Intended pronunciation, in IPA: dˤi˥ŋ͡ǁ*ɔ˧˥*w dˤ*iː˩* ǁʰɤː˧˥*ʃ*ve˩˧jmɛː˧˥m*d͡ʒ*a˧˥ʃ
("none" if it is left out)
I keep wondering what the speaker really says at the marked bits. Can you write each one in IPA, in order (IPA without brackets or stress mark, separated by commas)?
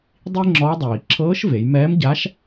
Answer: ɔ˧˥, iː˩, ʃ, ɟ